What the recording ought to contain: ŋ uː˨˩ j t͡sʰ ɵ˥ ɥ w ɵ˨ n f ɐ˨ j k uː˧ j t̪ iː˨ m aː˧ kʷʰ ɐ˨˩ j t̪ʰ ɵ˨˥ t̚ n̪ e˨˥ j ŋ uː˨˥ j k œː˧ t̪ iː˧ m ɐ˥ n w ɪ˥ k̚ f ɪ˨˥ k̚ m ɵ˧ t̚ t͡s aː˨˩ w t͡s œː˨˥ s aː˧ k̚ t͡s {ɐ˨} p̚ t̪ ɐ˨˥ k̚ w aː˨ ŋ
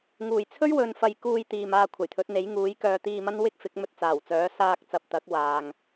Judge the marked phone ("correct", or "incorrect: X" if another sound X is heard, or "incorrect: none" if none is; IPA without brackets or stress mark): correct